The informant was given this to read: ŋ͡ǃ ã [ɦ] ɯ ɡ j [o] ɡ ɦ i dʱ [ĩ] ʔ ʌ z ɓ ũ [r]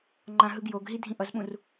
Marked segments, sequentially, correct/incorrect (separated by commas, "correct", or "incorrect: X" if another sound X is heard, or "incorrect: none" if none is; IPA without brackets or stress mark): correct, correct, correct, correct